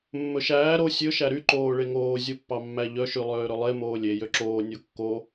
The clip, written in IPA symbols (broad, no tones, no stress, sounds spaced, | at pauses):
mː ɵ ʃ æː ɾ o sʲ ɵ ʃ æ ɾ y ǃ oː ɭ e ŋ oː zʲ o pː ɑ mː æ ʎ œ ʃ y lˠ øː ɾ ɵ lˠ e m oː lʲ e j ø ǁ oː nʲ o kː o